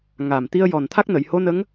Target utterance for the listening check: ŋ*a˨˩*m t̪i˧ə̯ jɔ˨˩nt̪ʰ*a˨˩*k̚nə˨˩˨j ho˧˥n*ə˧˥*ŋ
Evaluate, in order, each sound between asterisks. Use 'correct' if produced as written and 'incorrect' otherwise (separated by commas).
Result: correct, incorrect, correct